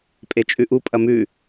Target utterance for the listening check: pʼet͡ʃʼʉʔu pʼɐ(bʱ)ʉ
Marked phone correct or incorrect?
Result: incorrect